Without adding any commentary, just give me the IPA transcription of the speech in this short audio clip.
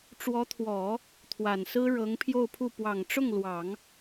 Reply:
ʈ͡ʂ w ɔ˧˥ t̪ʰ w ɔ˨˩˦ | t̪ʰ w a˨˩ n s ɹ̩˥ ɻ ɤ˧˥ ŋ pʰ j o˥˧ ʊ̯ pʰ u˥˩ p w ɑ˨˩ ŋ ʈ͡ʂ ʊ˥˩ ŋ l w ɑ˨˩˦ ŋ

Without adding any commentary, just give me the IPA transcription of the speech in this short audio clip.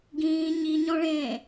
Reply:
ɡ ĩː ɲ i ɲ ɔ̃ ɭ ẽː

